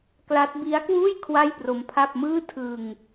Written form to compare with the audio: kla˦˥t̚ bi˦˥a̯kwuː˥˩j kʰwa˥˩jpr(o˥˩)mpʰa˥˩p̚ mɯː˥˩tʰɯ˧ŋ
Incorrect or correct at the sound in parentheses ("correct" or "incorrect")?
incorrect